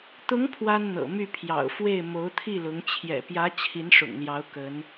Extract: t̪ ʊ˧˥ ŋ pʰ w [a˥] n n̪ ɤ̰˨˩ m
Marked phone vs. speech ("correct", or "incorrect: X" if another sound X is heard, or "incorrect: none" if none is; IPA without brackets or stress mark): correct